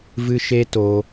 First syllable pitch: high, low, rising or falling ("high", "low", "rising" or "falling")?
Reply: high